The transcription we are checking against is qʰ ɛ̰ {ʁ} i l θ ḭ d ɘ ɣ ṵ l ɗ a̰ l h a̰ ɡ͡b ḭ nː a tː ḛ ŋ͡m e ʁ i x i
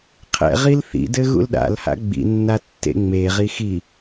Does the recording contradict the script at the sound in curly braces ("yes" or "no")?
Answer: no